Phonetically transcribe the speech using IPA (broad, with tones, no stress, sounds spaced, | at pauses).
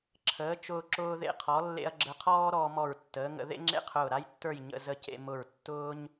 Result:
ǁʰ əː˩˧ t͡ʃ ʊː˧ ǁ ʊː˧ ð ḛ˧ qʰ ɔ˩˧ lː ḛ˧ ɐ̯ ɡ͡ǁ ə˧ qʰ ɔː˥ ɾ ɔː˧ m ɔ˧˩ ɹ tː əː˩˧ ŋ ə̰˩˧ ð ḛ˥ ŋ͡ǁ ḛ˥˧ qʰ ʊː˧˩ ɾ a˥ j tː ə˞˥˧ j ɲ ə̰˧ z ə˧ c ḛ˧ m ʊ˧˩ ɹ tː ʊː˥ ɲ